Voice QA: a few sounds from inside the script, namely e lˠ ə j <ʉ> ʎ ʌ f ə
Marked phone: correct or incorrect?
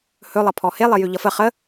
correct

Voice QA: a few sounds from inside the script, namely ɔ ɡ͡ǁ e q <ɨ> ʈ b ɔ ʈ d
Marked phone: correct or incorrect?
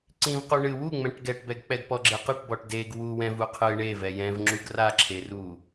correct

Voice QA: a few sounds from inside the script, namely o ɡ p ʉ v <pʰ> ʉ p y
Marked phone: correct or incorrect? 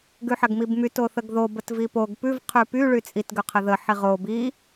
incorrect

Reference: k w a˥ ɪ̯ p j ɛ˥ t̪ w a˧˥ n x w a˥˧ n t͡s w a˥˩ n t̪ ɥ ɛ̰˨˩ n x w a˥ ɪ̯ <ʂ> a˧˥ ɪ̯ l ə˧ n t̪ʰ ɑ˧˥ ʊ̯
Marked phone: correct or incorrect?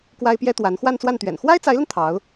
incorrect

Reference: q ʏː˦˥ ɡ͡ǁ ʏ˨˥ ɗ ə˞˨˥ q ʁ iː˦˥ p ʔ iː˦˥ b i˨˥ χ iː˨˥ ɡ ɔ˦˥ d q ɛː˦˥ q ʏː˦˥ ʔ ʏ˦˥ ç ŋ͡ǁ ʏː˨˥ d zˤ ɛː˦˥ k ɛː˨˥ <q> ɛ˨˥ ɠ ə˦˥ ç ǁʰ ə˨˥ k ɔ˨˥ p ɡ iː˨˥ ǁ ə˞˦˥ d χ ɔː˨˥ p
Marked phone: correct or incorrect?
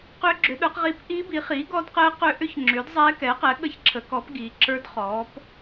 correct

